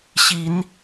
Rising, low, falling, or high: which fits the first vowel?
low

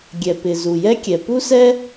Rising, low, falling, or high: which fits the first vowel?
low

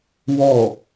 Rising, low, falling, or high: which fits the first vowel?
falling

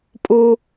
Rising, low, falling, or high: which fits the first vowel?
high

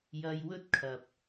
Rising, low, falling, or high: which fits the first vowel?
high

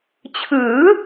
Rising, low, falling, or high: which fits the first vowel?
rising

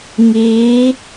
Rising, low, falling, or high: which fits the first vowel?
rising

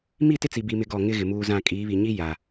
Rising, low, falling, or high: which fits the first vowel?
falling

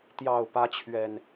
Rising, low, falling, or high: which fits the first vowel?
low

